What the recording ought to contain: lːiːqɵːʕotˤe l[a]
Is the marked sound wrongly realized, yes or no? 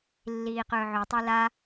no